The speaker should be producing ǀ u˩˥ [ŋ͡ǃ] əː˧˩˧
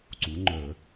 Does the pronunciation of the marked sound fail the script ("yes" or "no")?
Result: no